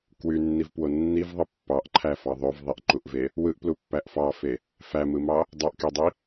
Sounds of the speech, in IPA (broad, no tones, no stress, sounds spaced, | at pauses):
k w y nː i v p w o nː i v ðˤ ɯ pː ɑ ʔ ǃʰ æ f ɑ ðˤ ø v ðˤ i ʔ ǃ u ʔ v e | w ɯ ʔ p l u pː æ ʔ f ɑ f e | f æ m ɯ m ɑ | dˤ o ʔ k e dˤ i